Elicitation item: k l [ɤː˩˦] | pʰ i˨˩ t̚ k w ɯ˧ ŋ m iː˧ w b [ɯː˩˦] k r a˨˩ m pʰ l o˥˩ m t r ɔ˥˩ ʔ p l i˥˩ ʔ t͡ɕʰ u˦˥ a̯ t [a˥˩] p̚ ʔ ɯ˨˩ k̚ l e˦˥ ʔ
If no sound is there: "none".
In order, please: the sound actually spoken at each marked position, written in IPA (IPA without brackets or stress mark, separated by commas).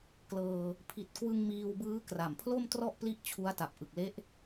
ɤː˧, ɯː˦˥, a˨˩